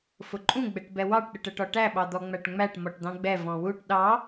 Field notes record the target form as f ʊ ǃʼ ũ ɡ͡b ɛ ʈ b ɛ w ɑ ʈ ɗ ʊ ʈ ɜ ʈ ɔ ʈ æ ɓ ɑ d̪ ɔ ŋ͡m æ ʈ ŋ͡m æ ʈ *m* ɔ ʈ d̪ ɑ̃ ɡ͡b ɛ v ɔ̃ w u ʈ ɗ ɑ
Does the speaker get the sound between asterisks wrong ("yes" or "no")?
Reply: no